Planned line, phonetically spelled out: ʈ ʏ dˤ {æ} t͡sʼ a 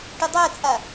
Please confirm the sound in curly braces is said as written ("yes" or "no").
yes